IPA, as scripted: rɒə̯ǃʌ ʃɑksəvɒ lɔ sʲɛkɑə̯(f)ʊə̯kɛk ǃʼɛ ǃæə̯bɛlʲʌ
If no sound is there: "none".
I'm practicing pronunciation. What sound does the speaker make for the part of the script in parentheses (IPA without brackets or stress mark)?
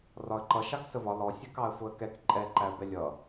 f